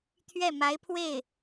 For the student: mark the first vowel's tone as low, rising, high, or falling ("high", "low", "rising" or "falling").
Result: falling